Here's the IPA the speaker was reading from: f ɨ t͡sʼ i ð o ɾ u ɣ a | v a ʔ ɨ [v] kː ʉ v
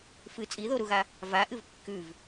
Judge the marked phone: correct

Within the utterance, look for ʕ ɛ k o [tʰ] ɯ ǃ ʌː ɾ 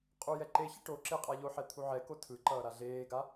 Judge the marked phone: correct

